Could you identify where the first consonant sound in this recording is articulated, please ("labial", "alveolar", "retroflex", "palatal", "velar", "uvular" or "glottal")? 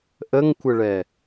glottal